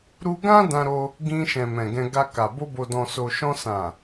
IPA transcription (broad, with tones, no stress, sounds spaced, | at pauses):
ɾ u˧ ɡ ã˦ d ã˧ ɾ o˧ | ɡ ĩ˧ ʃ ɛ̃˨ m ɛ̃˨ ɡ ɛ̃˧ ɡ a˧ k a˨ b o˧ b o˨ d ɔ̃˨ s o˨ ʃ ɔ̃˧ s ã˨